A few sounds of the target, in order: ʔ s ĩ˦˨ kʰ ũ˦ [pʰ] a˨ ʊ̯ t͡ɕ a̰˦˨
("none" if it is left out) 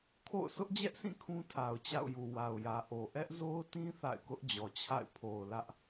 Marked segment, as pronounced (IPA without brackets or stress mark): tʰ